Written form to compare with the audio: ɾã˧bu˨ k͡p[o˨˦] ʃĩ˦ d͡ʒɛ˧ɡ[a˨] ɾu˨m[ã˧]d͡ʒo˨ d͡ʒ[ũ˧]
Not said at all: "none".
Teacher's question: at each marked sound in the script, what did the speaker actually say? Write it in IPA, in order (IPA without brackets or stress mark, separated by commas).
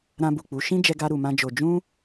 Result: u˨˦, a˧, ã˧, ũ˧